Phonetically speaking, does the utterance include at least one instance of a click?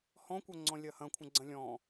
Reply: yes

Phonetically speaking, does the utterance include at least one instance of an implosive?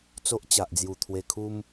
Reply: no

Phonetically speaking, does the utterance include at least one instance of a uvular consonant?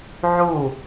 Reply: no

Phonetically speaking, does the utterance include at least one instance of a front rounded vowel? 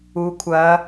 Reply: no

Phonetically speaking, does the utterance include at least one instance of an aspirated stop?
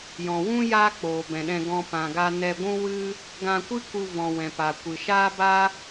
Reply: no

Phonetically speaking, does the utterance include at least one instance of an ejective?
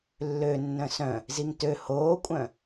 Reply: yes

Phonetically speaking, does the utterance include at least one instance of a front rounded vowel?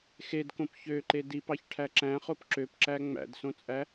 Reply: yes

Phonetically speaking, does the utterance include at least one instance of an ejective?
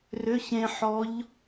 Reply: no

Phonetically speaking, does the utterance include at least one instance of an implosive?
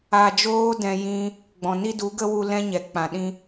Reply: yes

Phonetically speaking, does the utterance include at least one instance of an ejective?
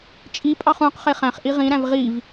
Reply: yes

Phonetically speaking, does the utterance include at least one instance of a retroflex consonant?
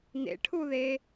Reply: yes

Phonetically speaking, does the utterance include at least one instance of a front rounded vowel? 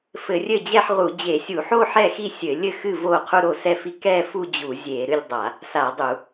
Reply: no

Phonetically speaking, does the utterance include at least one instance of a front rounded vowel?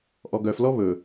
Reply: yes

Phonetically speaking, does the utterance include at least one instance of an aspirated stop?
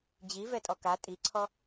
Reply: yes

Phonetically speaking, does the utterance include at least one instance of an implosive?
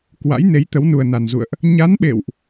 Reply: yes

